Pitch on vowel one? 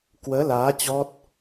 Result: rising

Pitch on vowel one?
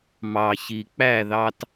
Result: low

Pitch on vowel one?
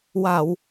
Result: low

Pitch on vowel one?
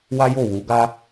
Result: high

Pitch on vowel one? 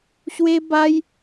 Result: high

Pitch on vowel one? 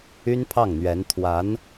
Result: high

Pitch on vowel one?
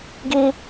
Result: high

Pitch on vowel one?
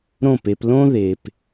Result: falling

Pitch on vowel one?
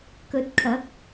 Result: rising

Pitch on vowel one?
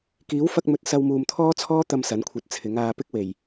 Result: rising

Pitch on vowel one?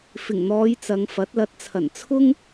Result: low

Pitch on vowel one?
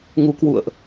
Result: rising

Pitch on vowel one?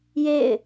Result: falling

